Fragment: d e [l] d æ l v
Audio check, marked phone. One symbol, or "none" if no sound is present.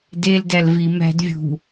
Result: l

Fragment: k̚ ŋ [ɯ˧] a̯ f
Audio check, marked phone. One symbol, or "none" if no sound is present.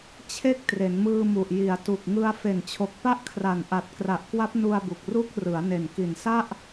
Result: ɯ˧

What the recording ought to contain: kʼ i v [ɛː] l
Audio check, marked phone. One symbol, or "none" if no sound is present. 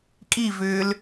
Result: ʏː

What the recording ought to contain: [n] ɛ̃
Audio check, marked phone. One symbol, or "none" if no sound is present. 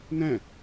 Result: n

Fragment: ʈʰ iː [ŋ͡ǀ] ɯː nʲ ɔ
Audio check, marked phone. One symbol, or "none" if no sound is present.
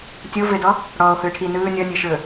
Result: n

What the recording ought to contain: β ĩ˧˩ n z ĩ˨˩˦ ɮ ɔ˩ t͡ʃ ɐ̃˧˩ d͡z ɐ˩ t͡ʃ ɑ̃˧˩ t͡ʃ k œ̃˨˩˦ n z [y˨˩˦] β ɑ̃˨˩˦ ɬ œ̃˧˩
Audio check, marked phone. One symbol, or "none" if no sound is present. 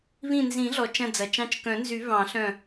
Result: y˨˩˦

